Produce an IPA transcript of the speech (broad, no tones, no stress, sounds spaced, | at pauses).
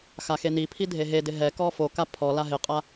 x a x e n i pʰ i dʱ e ɦ e d ɪ ɦ ɛ k ɔ f o k a pʰ ɔ l a ɦ ɪ qʼ a